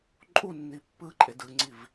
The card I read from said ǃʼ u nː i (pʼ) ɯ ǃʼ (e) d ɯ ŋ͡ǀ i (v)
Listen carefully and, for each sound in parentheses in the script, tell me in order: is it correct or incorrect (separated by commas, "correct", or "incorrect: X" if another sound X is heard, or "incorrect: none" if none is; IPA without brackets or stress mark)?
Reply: incorrect: pː, correct, correct